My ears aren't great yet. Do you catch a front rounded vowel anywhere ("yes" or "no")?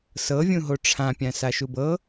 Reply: no